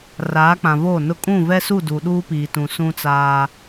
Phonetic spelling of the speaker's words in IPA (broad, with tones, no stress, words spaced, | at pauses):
raː˨˦k͡pã˨voː˦˨nʊ˦ kʼũ˦˨vɛ˦su˦˨ du˨ ɗuː˦piː˨tũ˨sũ˦ t͡saː˦